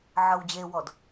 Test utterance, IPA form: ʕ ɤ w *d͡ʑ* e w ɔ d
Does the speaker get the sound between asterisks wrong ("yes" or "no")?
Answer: no